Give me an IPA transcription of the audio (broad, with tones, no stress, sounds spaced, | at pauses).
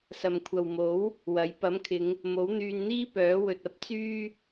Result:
s ɐ˨ m kʷʰ ɐ˨ w m o˨˥ w | w ɐ˨˥ j p ɐ˨˥ m kʰ ɪ˨˧ ŋ | m o˨˥ w n̪ yː˧ n n̪ iː˥ p œː˨˥ w ɵ˨ t̚ ɐ˥ p̚ t͡s yː˥